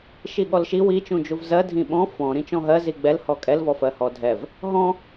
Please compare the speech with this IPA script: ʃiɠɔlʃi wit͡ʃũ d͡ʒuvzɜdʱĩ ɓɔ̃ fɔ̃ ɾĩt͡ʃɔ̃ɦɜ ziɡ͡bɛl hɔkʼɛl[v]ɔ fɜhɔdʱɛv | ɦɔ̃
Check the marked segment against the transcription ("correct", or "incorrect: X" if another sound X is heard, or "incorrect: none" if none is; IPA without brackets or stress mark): correct